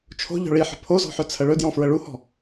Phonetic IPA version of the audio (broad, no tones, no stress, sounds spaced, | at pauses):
t͡ʃʰ o̤ ʎ ɔ̤ ɭ i ħ ə̤ pʰ o z ɔ̤ ħ ɵ t͡sʰ ə ɭ ɵ d j ɔ̃ f ɹ ə ɭ u h ɔ̤